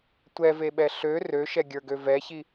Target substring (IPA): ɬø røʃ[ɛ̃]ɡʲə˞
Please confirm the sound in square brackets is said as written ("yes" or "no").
no